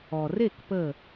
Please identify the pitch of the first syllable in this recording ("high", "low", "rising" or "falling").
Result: low